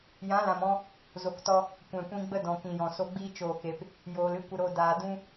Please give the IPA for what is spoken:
j ã˨˦ l ã˨ m ɔ̃˧ | z o˨ k t ɔ˧ | kʷ ɛ̃˨ kʷ ĩ˧ ɡ͡b ə˦ d ɔ̃˨ k ĩ˨ j ɔ̃˨ s o˧ ɡ͡b iː˦ t͡ʃ oː˦˨ k e˧ p | j oː˨ l ɨ˦ kʷ ə˧ ɾ o˧ d aː˨ d ũ˦

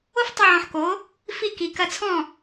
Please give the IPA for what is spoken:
o˦ f tˤ ɐ˧ ʕ ɔ̃˨ ħ k o˨˦ | f i˧ k i˨ k ɐ˧ t͡sʰ ɔ̃˦˨

